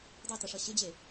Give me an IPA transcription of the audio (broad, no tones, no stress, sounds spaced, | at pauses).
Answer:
dˤ e t ə ʂ ʌ ɕ ɪ d͡ʑ e